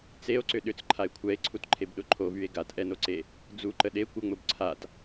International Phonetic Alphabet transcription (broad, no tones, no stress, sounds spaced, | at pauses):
t͡s e o̯ ǀ ʏ ɗ ʏ t͡s ǃʰ a e̯ kʷʰ ɛ e̯ ǀʰ u t ǃʰ e b ɗ ʊ ǃʰ o v y e̯ ɡ a t ʔ ɛ n o ǀ e | d͡z u ǃ ə ɗ e kʷ ə ŋ͡m ʊ b ǀʰ a t